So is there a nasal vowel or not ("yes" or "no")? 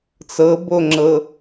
no